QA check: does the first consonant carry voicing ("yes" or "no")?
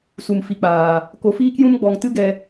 no